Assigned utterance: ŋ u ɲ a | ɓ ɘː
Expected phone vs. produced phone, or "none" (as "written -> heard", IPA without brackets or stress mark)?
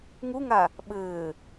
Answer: ɲ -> ŋ